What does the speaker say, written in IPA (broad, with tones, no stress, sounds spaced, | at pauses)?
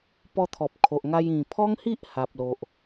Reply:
p ɔ˧ t̪ʰ ɔ˨ p̚ kʰ o˨ ʔ ŋ a˧ j ĩ˨˩ pʰ ɔ˦ ŋ h i˦ ʔ h a˨ p̚ l o˨ ʔ